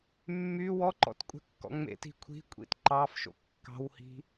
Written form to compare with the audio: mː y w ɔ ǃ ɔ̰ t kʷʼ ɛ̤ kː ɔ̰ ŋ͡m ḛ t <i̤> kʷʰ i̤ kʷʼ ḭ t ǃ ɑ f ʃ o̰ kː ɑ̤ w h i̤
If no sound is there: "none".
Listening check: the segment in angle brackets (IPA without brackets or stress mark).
i̤